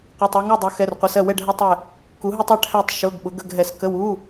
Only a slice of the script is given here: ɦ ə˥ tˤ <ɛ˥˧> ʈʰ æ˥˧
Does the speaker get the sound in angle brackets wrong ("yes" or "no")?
yes